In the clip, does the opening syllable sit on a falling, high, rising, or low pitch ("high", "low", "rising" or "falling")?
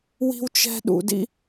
high